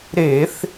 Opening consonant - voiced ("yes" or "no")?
yes